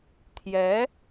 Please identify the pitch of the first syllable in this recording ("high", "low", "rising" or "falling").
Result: rising